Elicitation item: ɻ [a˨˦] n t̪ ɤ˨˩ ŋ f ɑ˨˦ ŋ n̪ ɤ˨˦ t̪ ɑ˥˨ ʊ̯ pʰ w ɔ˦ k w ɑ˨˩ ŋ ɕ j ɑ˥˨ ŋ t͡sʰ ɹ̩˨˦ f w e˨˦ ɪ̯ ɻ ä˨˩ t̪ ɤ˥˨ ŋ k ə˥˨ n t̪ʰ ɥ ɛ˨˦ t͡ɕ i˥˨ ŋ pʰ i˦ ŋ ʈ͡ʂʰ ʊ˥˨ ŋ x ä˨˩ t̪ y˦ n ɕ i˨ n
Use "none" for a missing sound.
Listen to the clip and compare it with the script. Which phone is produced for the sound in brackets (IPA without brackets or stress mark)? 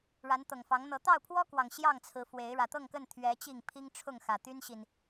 a˨˦